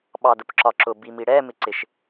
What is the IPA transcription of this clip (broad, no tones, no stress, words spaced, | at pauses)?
ɓɑdʊpǁɒǁʊ bimiɽɛ mɪǀɪʃ